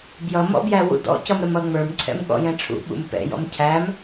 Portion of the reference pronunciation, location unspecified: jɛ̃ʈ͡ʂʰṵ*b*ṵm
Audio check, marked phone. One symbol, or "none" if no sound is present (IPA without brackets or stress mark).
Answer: ɓ